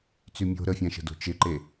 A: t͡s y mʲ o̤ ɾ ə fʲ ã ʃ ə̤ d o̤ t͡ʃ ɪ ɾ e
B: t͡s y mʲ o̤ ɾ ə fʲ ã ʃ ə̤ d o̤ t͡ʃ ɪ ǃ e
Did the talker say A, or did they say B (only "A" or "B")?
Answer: B